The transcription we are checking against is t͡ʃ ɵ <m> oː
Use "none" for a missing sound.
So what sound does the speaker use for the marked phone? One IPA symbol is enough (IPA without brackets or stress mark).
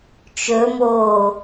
m